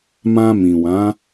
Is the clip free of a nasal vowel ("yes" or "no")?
no